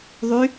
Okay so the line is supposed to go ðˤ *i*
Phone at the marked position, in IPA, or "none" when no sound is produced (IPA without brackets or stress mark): y